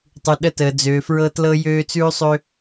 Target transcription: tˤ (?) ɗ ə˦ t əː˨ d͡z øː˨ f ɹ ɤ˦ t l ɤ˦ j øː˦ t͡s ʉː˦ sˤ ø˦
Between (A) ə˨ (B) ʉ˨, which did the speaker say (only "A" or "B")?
B